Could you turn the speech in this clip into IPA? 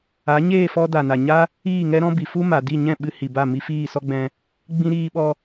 a˨˦ ɲeː˦˨fɔ˧ da˨na˨ɲa˦ | iː˦˨ŋɛ˦ɾɔ̃˦bi˨ fu˦ma˨ di˦˨ ɲɛ̃˦˨ ɓɨ˧hi˨ba˦˨ mi˧fiː˦˨sɔ˦ɡ͡bɛ̃˧ | ɡ͡bĩ˧ ɾiː˧ɓɔ˧

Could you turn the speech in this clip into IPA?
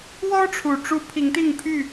wɔ˦ʈ͡ʂʰu˨˩ʈ͡ʂu˨˦ pʰi˨˦ŋt̪i˥˨ŋpʰy˥˨

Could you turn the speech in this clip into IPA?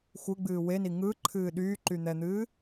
xʷɯɡ͡bɨː weni ŋɯǃʰɨː ɗyːǃyn̪ɛn̪ɨː

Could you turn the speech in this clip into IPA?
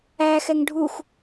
æ xɛŋɖʱux

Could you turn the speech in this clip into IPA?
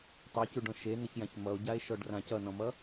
tˤecuɖɔ̃ ʃenʌçjãç mʌo̯ɟae̯ʃɔɖrã cʌnɔ̃mʌ

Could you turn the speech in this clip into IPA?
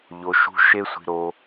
ʎo˧ʃṳ˦ ʃe˦sʷi̤˧ɾo˧

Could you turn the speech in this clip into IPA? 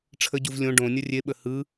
ʈ͡ʂʰəɟuv lʲõ ɖõnʲə rʲeɓə hɯ

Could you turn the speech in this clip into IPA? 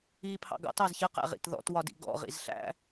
iːpʰɑ̰ɡɑ̰t ɑzçə qæ̰ʁḭtðɔ̰t wɒdḭɡɔ̰ ʁḭzɬæ̰

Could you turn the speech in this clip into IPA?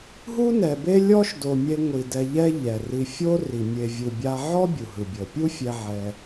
ɦu˦nɛ˨be˦ lʲɔ˦ʃdo˨mʲe˧ ŋʷi˨dɛ˧ ʎɛ˦ ʎɛ˨ri˧ fʲo˦ ri˨ mʲe˨ vʲɯ˨bʲa˧ʕɔ˦ bʲu˨ɦɯ˨bʲɤ˨ pʲu˦fʲɛ˧ ʕɛ˧

